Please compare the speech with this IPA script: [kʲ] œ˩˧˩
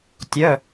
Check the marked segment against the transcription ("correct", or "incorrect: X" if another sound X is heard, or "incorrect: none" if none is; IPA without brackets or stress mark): incorrect: tʲ